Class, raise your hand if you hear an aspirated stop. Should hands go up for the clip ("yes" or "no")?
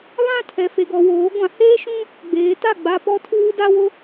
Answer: yes